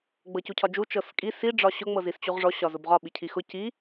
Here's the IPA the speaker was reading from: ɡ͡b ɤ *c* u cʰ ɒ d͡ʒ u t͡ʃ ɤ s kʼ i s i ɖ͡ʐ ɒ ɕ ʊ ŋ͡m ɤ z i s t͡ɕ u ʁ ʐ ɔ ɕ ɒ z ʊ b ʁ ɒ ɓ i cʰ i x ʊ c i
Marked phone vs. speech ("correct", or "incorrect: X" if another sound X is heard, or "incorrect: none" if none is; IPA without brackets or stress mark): correct